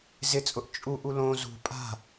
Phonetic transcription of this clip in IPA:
z ɪ t͡sʼ ʊ ʔ t͡ʃʼ u ʔ u l õ z ṳ pʼ a̤

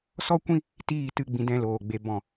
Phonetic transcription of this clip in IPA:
s ɔ˦ kʷ ĩ˦ | t iː˦˨ t ɨ˦˨ ɡ͡b ĩ˧ d ɛ̃˧ l oː˨ ɡ͡b e˧ b ɔ̃˦˨

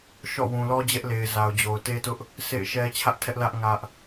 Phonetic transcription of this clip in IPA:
ʃ ɔ̰˦˨ w ũ˨ l ɔ˦ d͡ʑ ɛ˦ ʔ l e˨ ɪ̯ z a˨ ʊ̯ d͡ʑ o˨ ʊ̯ t e˦ t ʊ˦ ʔ | sʰ ḛ˦˨ ɪ̯ ʃ ɛ˦ t͡ɕʰ ä˦ ʔ tʰ ɛ˦ ʔ l ä˦ ʔ ŋ ä˦ ʔ

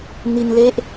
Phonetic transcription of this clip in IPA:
n i˧ n l e˦˥ ʔ

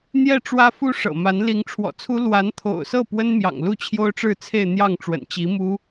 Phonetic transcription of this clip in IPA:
n̪ j ɛ˥˩ ʈ͡ʂ w ä˥ f u˥ ʂ ɤ̰˨˩ m a˧˥ n l i˧˥ ŋ ʈ͡ʂʰ w ɔ̰˨˩ t͡sʰ u˥ l w a˧˥ n t̪ʰ o̰˨˩ ʊ̯ s ɤ˥˩ p w ə˥ n m j ɑ̰˨˩ ŋ l u˥˩ t͡ɕʰ j o˥ ʊ̯ ʈ͡ʂ ɻ̩˥˧ t͡sʰ e˥˧ ɪ̯ n̪ j ɑ˥˩ ŋ ʈ͡ʂ w ə̰˨˩ n t͡ɕ i˧˥ m u˥

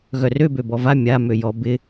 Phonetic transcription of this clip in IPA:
ɣ œ r ø b ø b ɔ v a mʲ a m ø j ɔ b ɪ

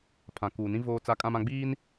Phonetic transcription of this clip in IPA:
pʰ ã˨ k uː˨ n ĩ˦ v oː˦ t͡s a˦ kʼ ã˦ m ã˦ ɡ͡b iː˦ n

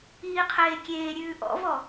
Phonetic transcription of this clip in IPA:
iː qʰ eː kʲ eː ɾʲ ʉː ʔ ɔ̰ v ɔ

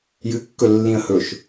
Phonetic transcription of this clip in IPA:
j ɨ kː ɵ lː ĩ ə̯ h ɵ ʃ

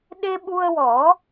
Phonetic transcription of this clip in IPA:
ɗ e˧ ɓ u˧ ə̯ w ɔ˨˩˦

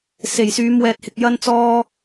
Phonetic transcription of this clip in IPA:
s e˨˩ j s yː˨˧ m w ɛː˨ t̚ h ɪ˨ k̚ j ɐ˧ n t͡s ɔː˧

